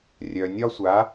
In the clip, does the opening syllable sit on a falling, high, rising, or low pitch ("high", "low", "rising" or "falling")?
low